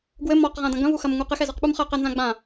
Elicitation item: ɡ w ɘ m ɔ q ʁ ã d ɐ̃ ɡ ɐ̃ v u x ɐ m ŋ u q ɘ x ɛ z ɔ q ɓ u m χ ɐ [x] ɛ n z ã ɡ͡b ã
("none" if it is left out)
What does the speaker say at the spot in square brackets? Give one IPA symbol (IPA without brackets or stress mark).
q